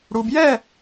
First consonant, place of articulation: retroflex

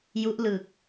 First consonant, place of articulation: palatal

